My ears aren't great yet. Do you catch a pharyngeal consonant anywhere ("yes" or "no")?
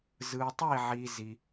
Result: yes